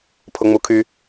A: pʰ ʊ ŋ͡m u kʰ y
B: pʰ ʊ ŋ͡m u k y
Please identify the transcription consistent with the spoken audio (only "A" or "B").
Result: A